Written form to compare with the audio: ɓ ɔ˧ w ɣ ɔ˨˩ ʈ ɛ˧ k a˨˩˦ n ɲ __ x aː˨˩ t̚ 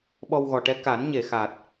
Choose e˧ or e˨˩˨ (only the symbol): e˨˩˨